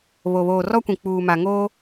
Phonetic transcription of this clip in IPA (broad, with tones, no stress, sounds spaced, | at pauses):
β o˨ β oː˨ r ɔ˦ kʷ ĩ˨ k͡p uː˨ m a˨ ŋ oː˦